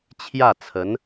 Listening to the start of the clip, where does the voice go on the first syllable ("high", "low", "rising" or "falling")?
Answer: falling